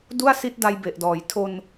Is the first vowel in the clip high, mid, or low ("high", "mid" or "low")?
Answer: high